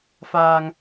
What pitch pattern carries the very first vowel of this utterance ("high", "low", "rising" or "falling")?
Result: low